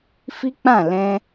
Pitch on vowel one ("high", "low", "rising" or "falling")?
high